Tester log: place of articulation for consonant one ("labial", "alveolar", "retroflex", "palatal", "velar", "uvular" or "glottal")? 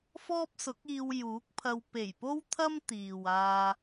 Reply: labial